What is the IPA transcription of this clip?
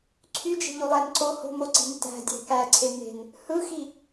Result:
ǀʰ y d͡ʒ e̤ ʎ u lˠ æ n ǀ o h o̤ m o ǀ i̤ n t æ̤ dʲ æ̤ k æ ǀʰ e n e̤ n | h ɯ x i

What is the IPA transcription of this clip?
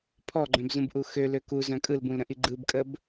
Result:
pʰ ɔ ɡ͡ǃ œ̃ b z ũ b ʔ u x ø l ø k u z œ̃ kʼ ɯ l b ũ l ɾ ə̃ ʔ i ɡ͡ǃ ɯ b kʼ ə b

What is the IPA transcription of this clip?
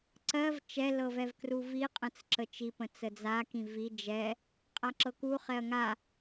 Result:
ǀ ɜ v t͡ʃ ɛ l ɤ v ɛ v k r u v i qʼ ə̃ t͡s ǁ ə t͡ʃ i p ə̃ t͡s ə d͡z a k ĩ v i d͡ʒ ɛ | qʼ a ǁ ɤ k u χ ɛ ɐ̯ ŋ a

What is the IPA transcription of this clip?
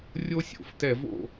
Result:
rʲ o˥ sʲ o̰˨˥ f t ɛ˧˩˧ v o̰˥˩

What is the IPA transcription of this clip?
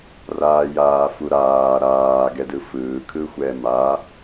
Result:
r aː j aː f u ɾ aː ɾ aː ɡ ɛ d ɯ f ɯː kʰ ɯ xʷ ɛː m a

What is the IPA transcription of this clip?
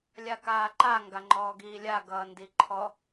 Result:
lʲ a k aː ǃ a ŋ ɡ a ŋ͡ǃ ɔː ɡ iː lʲ a ɡ ʌː n d i ǃʰ ɔ

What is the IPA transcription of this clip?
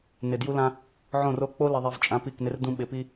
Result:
n ɪ˨ d j u˦ l ã˦ | ʕ õ˦˨ r o˦ k͡p o˦ l ɪ˨ ðˤ i˨ v t͡ʃʼ ã˨˦ p i˦˨ k n ɪ˦ r d ũ˦ ɓ ɪ˨ p i˦

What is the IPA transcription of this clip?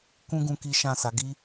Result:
k ũ˦ ɡ ũ˧ k i˦ ʃ ã˦˨ s a˨˦ ɡ i˦

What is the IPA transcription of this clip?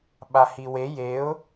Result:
ɓ a h i w e j e ʊ̯

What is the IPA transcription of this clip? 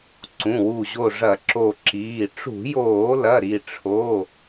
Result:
ǀ ũ˩˧˩ w u˧˩ ʑ o˧˩ ʐ ɐ˧˩˧ ǁ o˧˩ ǁ iː˩˧˩ ʈ͡ʂ ṳ˧˩˧ j oː˧˩˧ l ɐ˩˧˩ ɾ i˧˩ ʈ͡ʂʰ o˩˧˩

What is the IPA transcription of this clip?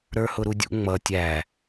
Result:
ɾ ə˞ h ʊ ɾ u dʲ ṵ ŋ͡m ʌ tʲ æ

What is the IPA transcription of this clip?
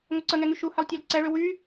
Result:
ŋ o ǀ ə ŋ ɛ ŋ y ʃ u h ɛ lˠ tʲ ɛ l ǀ ɛ ɭ ø w y

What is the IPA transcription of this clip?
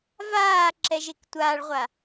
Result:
v aː ǁ ɛ ʒ e k tʷ aː ɭ ʁʷ a

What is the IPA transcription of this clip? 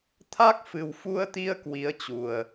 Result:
t̪ʰ a˦˥ k̚ f ɨ˨˩ w f u˧ ə̯ t̪ i˧ ə̯ k w i˨˦ ə̯ t͡ɕ u˨˩ ə̯

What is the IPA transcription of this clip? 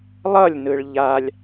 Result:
lˠ ʌ lʲ n ɯ ɭ ʎ a lʲ

